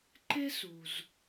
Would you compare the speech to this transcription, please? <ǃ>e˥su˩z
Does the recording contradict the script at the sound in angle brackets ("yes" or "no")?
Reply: no